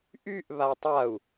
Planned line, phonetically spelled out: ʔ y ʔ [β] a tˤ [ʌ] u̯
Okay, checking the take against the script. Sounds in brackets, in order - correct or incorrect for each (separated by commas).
correct, incorrect